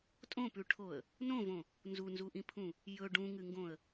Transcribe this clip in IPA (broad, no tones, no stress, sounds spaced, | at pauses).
tʼ õ p ʉ ʈʰ o ə̯ | n õ v õ | n z u n z u ʔ ĩ pʰ ũ | j ɵ ɖ ũ ŋ ɨ ŋ ɡ õ ə̯